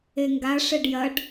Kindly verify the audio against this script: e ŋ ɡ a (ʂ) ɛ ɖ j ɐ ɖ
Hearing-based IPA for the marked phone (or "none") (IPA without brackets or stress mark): ʂ